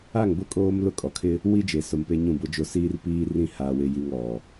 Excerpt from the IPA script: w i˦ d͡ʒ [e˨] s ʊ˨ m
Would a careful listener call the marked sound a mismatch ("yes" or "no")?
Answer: no